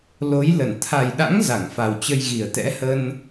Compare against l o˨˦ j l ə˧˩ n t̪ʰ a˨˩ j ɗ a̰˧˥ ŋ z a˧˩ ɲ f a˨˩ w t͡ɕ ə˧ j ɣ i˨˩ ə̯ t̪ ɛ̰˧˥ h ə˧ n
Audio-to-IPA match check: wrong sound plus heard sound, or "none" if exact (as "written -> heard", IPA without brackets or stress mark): ɲ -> ŋ